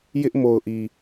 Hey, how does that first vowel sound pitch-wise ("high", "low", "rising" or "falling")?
high